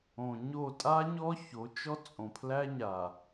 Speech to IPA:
õ˨ ɲ o˦˨ tʼ a˦ ɲ ɔ˦ ç o˨˦ t͡ʃ ɔ˦ t͡sʼ õ˨ pʰ l æ˦ ɲ a˨

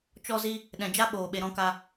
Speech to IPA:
t͡ʃ ɔ˦ z i˦ | ɗ ɛ̃˨ d͡ʒ a˧ ɓ oː˨ ɓ e˨ ɾ ɔ̃˧ k a˧

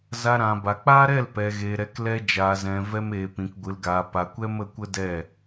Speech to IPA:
z a˧ ɾ ã˨ b a˨ k͡p aː˦ ɾ ɛ˦˨ l p ɛ˨ ɣ eː˨ ɾ ɛ˨˦ k l ɛ˧ d͡ʒ aː˨ z ɛ̃˨ v ɛ˧ m eː˨ p ĩ˨ k ɡʷ ɨ˨ l ɡ aː˨ p a˨ kʷ ɛ˦ m ə˧ kʷ ə˦ d ɛ˦˨

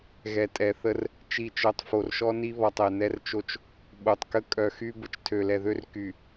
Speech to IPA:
ɣ ɛ˨ tʼ ɛ˨ θ ə˦ r | t͡ʃ i˨ t͡ʃ œ˨ tˤ f o˨ r ʃ ɔ˦ n i˦ β ɔ˨ tˤ ɛ˨ n ɛ˦ r t͡ʃ o˦ t͡ʃ | ɓ o˨ tˤ k ə˦ kʼ œ˨ x y˦ b ə˨ t͡ʃ tʰ ø˨ l ɛ˨ ð ø˦ r k y˨

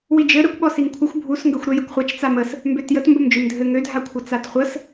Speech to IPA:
w i d͡ʒ ɘ ɾ ɘ kʷ ɓ ɔ s i ŋ kʷʰ ə xʷ bʱ u s ŋ ɡ ə xʷ ɾ ø j ə kʷ χʷ a t͡ʃ t͡s a m ə s | m b ø t j ə t m b ə m d͡ʒ ø m dʱ ɘ ŋ ø dʱ a kʷʰ ɘ t͡s a t χʷ ə s

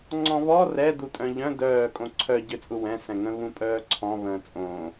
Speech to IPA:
ŋ͡ǀ ɔ̃ β ɔ r ɛ d u tʼ œ̃ ʎ œ̃ d œː kʼ õ ǀʰ œ ɟ ø t͡sʼ u w ɛ̃ s ɛ̃ ŋ ə̃ β ũ pʼ œː ǀʰ ɔ̃ β ə̃ː t͡sʼ õː

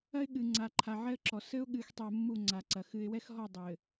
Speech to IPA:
ɐ˦ ɪ̯ ɠ ɨ˨ ŋ͡ǀ a˨ ǃʰ a˨ ʕ ɛ˦ ə̯ ǁ ɔ˨ s ɘ˦ ʊ̯ ɠ ɨː˨ x tˤ i˨ ə̯ mː u˦˨ ŋ͡ǀ a˨ ǀ ɐ˨ x ɨ˨ ɪ̯ w ɛ˦ x ɦ ɔ˦˨ dˤ ɘː˨

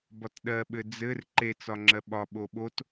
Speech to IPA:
b ɒ t ɗ ɜ ɓ ɘ d͡z ɘ r ǃ e t͡s ɒ ŋ͡ǁ ɜ ɓ ɒ ɓ o ɓ o t

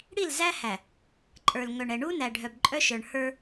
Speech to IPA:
ɽ i˦˨ l z æ˦ h æ˨ | ǃʼ ə˞˨ l ŋ œ˨ ɳ ɛ˨ ɳ u˦ n æ˨ ɖʱ œ˨ b ǃʼ œ˦ ʃ ə˞˨ ɳ h ə˞˦

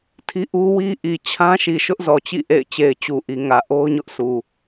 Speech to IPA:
tʰ i˦ ʔ u˦ w i˦ ʔ i˨ t͡ɕʰ ã˦ ʃ i˨ ʃ ʊ˦ ʔ z ɔ˨ t͡ɕ ḭ˦˨ ʔ ḛ˦˨ ɪ̯ t͡ɕ e˨ ɪ̯ t͡ɕ u˨ ʔ i˨ ŋ ä˨ ʔ o˦ ʊ̯ ɲ ʊ˦ ʔ sʰ u˨

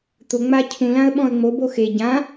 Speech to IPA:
t̪ ʊ ŋ͡m a cʰ ũ l ã ə̯ ɓ ɔ̃ ə̯ ŋ͡m o b o x e ɟ ã

